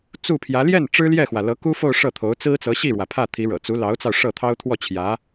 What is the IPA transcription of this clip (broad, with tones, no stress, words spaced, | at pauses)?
t͡su˥˩pʰjä˧˥ ljɛ˥˩n ʈ͡ʂɻ̩˥ljɛ˥˩xwä˩ lɤ˧˥ku˥fo˥˧ʊ̯ ʂɤ˥˩t̪ʰo˧˥ʊ̯ t͡sɹ̩˥t͡sɤ˧˥ɕi˥˩ɻwä˩ pʰä˥˩t̪ʰi˧˥ɻɤ̰˨˩ t͡su˧˥lɑ˧˥ʊ̯t͡sɑ˧ʊ̯ ʂɤ˥˩t̪ʰɑ˥ʊ̯ t̪ʰwɔ˥˩t͡ɕʰjä˧˥